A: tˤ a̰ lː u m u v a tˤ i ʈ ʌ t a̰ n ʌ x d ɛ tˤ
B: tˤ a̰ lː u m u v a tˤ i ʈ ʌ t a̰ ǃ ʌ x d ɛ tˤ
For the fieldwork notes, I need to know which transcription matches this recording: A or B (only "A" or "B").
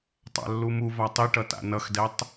A